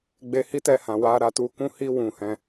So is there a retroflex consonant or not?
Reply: no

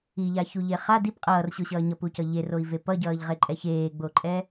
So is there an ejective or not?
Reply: yes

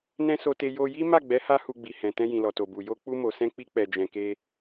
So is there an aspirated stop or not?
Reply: no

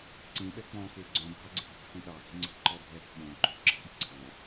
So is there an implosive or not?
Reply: yes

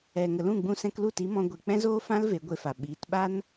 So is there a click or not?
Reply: no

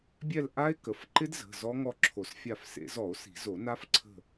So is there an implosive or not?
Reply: no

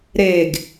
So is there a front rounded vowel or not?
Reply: no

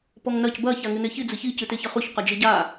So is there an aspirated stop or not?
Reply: no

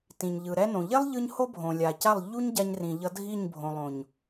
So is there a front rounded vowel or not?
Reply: no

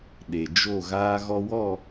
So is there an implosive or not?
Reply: yes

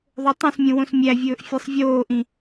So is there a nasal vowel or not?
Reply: yes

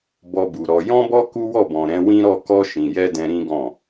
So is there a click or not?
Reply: no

